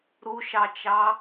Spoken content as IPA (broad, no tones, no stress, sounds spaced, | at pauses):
ɾ u ʃ ɑ t͡ʃ ɑ